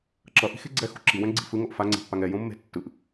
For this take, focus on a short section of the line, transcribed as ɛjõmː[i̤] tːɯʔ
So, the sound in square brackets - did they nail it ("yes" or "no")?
no